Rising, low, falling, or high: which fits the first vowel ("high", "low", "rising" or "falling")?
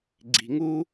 low